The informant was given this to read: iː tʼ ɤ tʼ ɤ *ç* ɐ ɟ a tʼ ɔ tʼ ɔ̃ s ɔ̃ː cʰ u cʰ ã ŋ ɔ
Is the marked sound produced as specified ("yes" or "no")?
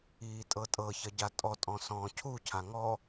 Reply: yes